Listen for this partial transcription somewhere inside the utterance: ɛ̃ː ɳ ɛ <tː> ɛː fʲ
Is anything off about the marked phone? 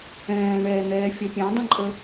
yes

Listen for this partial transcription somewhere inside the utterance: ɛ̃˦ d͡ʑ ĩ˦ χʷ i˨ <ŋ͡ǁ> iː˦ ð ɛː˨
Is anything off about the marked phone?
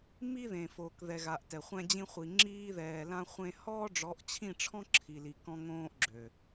no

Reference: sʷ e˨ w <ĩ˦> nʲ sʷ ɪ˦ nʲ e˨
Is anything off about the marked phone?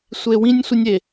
no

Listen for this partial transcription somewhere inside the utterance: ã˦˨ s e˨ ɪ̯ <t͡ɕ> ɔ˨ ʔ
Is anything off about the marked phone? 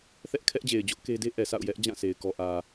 yes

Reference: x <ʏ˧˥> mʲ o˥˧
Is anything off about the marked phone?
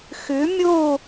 no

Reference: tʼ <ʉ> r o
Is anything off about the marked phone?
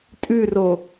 no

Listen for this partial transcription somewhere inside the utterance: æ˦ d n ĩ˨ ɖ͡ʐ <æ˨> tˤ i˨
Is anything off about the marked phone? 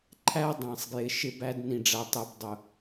no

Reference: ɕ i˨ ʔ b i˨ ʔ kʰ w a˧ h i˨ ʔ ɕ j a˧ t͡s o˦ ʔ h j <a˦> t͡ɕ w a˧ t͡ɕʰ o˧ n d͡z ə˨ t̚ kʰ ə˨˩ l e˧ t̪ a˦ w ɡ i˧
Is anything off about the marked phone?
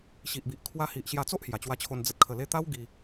yes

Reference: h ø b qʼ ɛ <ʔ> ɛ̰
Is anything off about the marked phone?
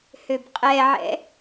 yes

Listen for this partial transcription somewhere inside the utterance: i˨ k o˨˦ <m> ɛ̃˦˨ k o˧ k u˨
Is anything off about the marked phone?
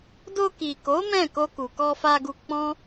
no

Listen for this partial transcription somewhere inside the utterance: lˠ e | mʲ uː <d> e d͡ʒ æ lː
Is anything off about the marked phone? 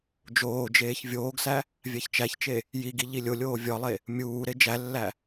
yes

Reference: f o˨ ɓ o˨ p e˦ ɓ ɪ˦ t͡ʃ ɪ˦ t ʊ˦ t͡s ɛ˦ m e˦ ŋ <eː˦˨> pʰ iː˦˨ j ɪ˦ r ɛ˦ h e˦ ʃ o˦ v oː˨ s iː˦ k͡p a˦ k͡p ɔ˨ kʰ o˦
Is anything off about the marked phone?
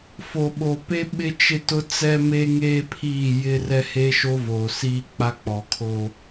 yes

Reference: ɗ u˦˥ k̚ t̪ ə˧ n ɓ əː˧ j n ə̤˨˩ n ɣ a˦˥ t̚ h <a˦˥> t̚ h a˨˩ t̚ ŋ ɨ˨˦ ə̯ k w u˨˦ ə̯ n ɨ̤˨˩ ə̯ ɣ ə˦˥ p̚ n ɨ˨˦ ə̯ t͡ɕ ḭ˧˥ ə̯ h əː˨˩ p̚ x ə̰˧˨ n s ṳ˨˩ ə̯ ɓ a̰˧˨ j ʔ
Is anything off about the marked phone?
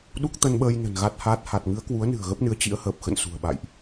yes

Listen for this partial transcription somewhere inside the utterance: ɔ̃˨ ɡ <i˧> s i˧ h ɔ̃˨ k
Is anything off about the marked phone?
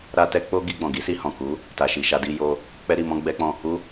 yes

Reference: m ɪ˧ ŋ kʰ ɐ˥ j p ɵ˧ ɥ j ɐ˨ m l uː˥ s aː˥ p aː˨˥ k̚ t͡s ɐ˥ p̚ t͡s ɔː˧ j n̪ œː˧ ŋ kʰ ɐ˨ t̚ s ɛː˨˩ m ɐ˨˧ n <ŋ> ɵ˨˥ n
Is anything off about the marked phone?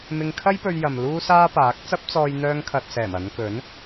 yes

